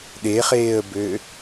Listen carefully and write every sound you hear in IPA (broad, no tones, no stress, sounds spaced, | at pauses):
ɗ e χ eː ə̯ b ø